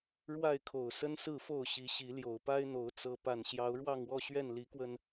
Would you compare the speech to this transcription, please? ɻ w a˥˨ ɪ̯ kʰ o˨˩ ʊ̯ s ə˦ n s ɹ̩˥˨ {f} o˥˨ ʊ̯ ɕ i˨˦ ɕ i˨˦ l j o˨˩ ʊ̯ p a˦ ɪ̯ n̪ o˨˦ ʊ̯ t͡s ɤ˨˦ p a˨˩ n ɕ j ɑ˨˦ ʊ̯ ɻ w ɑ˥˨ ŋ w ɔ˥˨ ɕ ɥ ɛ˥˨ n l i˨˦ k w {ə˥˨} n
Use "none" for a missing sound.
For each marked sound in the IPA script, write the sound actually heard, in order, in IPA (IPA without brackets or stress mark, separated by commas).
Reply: f, ə˧